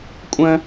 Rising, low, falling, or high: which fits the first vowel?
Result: high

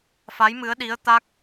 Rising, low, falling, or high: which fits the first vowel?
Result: rising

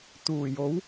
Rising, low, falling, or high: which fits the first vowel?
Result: low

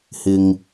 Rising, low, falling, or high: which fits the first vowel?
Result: low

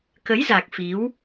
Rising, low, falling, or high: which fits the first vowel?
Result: rising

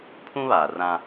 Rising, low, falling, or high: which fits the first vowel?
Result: high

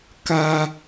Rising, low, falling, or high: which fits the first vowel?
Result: high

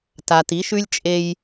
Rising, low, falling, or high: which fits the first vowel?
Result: low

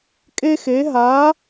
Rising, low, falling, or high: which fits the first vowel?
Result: high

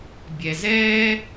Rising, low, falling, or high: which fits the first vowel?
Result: low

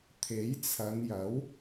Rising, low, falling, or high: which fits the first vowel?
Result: rising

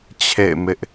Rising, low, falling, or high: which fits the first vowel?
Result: falling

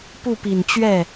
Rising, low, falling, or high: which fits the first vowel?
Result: falling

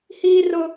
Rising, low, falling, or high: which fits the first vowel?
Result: high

